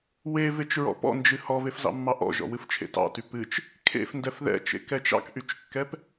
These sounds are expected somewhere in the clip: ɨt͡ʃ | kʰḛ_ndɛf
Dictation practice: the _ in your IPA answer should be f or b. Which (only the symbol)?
f